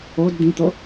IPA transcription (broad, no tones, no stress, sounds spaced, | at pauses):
o d d̪ ĩ t̪ o